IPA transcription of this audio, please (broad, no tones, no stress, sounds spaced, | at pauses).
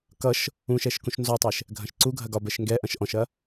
k ʌ ʃ | ũ ʃ ɛ ʃ k ũ ʃ n z ɔ tˤ ɛ ʃ | ɡʱ ɐ̃ ʃ ǀ u ɡʱ ɐ ɡ ɒ b ɛ ʃ ŋ ɡ ɛ ʔ ɐ̃ ʃ ʔ ɔ̃ ʃ ɐ